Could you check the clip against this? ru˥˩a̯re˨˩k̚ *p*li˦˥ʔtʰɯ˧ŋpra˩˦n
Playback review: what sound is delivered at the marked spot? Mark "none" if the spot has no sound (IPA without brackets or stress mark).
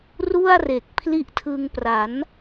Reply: pʰ